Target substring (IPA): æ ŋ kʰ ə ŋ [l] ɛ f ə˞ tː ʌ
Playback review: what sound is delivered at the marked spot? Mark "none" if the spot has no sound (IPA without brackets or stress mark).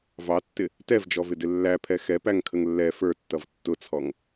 lː